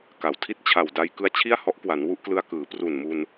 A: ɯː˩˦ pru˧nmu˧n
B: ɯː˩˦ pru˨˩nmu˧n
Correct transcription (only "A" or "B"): B